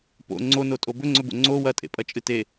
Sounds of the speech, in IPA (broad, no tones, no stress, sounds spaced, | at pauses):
p o̰ ŋ͡ǀ o n o tʼ o b ɵ ŋ͡ǀ ɵ b o̰ ŋ͡ǀ o w ɐ tʼ ḛ pʼ ɐ t͡ʃʼ ɨ t e